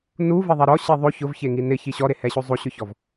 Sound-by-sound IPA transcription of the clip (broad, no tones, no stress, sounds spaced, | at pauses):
n u v e ðˤ ɛ ɾ ɔ ɕ i ðˤ o ç ʊ v ç e ŋ i n ɪ ç i ɕ ɔ ɾ e h ɛ ɕ u zˤ u ɕ ʊ ç ɔ v